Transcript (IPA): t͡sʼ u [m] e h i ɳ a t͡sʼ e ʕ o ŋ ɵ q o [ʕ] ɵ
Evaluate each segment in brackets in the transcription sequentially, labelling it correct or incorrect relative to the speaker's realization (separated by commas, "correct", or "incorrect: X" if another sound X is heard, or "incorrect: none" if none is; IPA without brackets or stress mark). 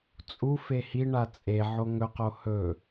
incorrect: f, incorrect: h